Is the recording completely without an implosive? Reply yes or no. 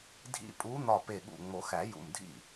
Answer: no